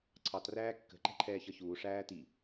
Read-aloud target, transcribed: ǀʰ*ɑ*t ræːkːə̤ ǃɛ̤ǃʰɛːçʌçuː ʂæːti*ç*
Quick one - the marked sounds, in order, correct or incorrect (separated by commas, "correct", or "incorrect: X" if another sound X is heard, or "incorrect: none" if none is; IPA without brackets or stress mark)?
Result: correct, incorrect: none